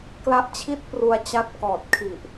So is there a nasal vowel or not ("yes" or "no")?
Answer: no